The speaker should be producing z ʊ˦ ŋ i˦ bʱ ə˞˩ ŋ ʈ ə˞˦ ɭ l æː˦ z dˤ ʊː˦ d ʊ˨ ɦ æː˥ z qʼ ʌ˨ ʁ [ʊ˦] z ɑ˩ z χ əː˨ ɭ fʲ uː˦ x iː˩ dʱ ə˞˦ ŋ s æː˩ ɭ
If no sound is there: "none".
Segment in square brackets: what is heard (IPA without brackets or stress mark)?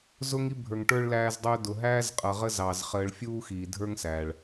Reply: ə˦